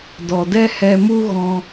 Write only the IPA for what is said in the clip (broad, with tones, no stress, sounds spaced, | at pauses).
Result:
d ɔ˨ d ɛ˦ h ɛ˧ m u˦ ɣ ɔ̃˧